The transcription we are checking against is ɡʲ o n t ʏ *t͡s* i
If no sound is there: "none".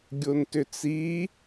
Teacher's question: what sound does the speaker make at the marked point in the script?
t͡s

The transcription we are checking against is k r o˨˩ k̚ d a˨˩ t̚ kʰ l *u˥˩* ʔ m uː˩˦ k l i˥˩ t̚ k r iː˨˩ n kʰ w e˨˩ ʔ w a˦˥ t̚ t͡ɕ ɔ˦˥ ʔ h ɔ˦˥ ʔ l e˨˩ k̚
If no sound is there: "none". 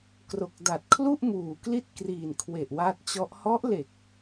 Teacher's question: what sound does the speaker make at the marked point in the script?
u˥˩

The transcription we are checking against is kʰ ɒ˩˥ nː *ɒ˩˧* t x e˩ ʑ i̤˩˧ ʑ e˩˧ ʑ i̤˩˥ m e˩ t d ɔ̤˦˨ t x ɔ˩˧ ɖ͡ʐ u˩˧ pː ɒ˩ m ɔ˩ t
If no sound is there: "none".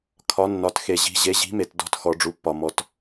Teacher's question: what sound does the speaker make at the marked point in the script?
ɒ˩˧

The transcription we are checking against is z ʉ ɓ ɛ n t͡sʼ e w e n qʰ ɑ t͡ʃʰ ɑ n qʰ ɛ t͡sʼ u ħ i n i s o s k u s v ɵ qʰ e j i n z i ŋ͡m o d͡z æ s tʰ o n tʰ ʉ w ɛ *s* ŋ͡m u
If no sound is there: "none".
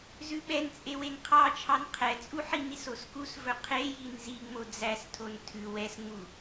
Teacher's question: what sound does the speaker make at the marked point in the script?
s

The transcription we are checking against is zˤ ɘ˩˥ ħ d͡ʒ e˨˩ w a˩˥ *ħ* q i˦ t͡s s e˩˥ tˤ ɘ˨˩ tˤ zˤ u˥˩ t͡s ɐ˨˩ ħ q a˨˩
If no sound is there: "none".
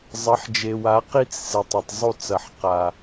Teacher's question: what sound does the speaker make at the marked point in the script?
none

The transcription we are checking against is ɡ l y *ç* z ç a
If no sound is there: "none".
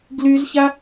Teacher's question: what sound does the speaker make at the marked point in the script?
none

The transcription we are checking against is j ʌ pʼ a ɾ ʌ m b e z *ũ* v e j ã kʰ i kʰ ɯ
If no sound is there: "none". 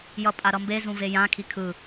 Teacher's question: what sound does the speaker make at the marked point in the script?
ũ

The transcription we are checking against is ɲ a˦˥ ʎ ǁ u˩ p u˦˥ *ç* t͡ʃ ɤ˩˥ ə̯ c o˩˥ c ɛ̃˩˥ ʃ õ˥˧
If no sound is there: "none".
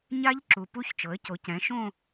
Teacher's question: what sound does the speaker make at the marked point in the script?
ç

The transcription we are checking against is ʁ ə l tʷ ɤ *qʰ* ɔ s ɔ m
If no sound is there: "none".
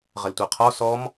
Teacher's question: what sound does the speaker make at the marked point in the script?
qʰ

